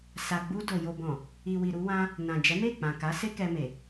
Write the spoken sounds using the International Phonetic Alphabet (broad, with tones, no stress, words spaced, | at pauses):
sa˨ɡ͡bu˧ do˨ jo˨bɔ̃˨ | i˨wi˨ ɾu˧wã˧ | nã˨d͡ʒɛ˨˦ me˦˨k͡pã˨ka˨˦ se˦kɛ˧me˨